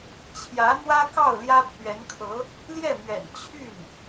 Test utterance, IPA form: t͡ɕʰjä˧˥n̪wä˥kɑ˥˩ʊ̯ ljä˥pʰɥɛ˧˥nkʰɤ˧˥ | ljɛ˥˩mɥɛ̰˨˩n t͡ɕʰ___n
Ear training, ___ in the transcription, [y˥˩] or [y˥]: y˥˩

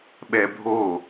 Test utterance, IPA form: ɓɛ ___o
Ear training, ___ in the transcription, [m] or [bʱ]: bʱ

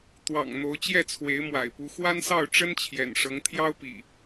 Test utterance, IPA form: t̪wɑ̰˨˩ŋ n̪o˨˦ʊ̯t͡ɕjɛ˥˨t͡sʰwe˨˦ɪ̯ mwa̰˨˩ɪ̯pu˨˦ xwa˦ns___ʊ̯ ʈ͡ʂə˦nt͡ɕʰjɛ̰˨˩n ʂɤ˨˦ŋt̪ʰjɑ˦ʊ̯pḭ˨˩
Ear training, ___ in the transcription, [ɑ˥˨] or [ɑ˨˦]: ɑ˥˨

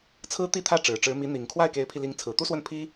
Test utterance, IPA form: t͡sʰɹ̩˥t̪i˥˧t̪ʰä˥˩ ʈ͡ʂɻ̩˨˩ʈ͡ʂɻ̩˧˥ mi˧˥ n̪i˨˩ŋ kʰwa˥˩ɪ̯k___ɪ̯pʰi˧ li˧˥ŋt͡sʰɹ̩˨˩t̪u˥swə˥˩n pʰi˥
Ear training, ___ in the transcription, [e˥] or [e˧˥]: e˧˥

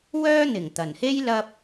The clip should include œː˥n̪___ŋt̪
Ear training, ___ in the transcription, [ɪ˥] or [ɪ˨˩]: ɪ˨˩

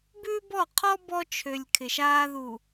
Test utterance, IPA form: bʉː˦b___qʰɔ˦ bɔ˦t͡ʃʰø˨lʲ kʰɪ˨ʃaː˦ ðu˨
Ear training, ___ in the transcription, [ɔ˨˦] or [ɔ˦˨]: ɔ˦˨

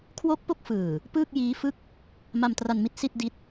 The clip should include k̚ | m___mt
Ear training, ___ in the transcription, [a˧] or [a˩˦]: a˧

